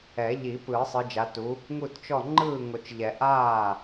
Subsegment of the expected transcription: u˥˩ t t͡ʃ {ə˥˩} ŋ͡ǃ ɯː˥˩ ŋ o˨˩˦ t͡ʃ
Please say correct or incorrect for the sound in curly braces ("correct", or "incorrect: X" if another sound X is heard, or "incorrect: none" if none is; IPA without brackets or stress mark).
incorrect: ɔ˥˩